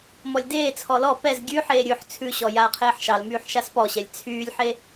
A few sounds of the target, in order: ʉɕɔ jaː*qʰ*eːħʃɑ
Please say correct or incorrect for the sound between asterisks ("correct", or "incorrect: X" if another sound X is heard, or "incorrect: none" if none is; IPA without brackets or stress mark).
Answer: correct